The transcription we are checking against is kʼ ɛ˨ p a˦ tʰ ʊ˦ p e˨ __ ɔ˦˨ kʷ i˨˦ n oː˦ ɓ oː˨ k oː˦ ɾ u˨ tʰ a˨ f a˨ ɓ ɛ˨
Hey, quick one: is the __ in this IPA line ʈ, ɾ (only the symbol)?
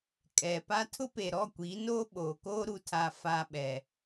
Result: ɾ